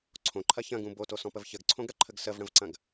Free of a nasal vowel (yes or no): no